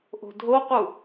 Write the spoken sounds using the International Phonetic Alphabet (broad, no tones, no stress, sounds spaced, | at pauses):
ʔ o̤ dʱ o q u